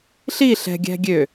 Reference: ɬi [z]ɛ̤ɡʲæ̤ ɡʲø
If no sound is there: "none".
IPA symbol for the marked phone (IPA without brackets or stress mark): ɬ